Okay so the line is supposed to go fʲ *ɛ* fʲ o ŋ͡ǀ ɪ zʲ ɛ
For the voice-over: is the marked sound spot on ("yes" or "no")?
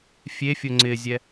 no